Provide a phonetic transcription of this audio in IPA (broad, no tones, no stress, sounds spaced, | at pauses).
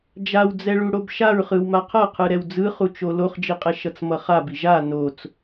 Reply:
d͡ʒ a w d͡z ɛ ɭ u ɽ o b ʃ a ɹ χ ɯ w m a qʰ ʌ qʰ ɯ ɾ ɛ w d͡z ɯ χ u t͡ʃ o l o χ d͡ʒ i qʼ ɛ ʃ ʌ t͡s m ʌ χ a b i ʒ a n o t͡s